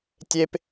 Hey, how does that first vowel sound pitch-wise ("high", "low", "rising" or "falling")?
high